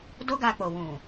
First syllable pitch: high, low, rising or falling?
high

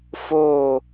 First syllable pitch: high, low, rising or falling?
falling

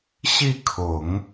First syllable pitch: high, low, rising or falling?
falling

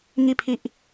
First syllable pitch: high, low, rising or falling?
falling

